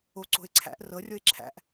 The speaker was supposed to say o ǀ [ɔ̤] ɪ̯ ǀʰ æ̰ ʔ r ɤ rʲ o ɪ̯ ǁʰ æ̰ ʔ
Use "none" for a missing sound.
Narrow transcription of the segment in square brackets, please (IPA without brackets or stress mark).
o̤